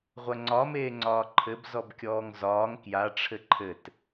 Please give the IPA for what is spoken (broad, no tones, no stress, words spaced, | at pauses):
ʁʷɐŋ͡ǀɒ meːŋ͡ǀɒːǃʰɘb zɔbkʲɔːŋzɒːŋ kja ʈ͡ʂʰɘǃʰɘt